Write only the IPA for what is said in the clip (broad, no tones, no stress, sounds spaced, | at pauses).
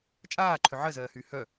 t͡ʃʼ aː ǃʰ ʏ ʕ ɜ z ɜː h yː h œ